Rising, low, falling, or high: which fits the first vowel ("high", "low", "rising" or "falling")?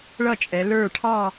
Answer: falling